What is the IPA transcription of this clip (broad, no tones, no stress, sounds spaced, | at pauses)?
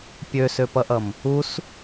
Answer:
pʲ ø s ø p ʌ ʔ ʌ m | u s